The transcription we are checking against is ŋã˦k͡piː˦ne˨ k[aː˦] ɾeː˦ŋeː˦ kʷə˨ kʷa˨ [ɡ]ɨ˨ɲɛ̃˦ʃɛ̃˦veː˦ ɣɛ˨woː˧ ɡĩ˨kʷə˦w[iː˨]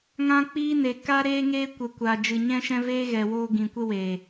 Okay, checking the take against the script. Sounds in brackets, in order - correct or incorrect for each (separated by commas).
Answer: incorrect, incorrect, incorrect